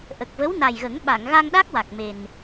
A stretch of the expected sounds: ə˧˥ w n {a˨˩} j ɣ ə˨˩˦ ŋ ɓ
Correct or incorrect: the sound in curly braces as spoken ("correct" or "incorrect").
correct